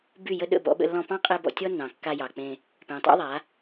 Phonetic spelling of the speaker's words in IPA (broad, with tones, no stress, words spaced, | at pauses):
by˦˨ jə˧ ɗə̰˦˨bɔ̰˧ɓə̰˧ lːɔ̃˧pɑ̃˦qʼe˧ bɔ̰˧tʲɔ˦nːɑ̃˨ kːa˧jɑ˨k͡pẽ˧ | pẽ˨tˤɑ̰˦ðˤa˨˦